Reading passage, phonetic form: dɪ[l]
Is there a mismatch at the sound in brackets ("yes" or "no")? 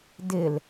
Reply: no